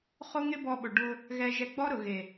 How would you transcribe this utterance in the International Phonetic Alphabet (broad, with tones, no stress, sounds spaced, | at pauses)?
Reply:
χ o˦ ŋ ɪ˦ b ɔ˧ ɓ ʊ˨ ɖ ʊ˧ | ɣ ɛ˧ ʒ ɛ˧ ɡ͡b ɔ˦ ɾ ʊ˨ ɣ e˨